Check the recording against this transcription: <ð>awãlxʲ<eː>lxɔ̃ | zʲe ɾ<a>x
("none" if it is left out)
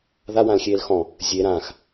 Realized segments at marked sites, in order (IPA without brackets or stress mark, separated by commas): ð, eː, ã